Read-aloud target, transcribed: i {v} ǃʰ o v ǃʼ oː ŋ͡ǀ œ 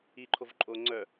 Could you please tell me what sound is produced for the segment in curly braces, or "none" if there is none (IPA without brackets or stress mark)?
none